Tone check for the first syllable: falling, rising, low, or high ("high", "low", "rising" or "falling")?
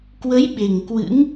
rising